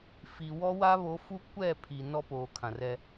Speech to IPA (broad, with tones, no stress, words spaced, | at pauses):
fi˨ wɔ˦wa˦ βo˨˦fu˦ kʷɛ˦˨ pʰi˨ nɔ˦poː˨kʰã˨rɛ˦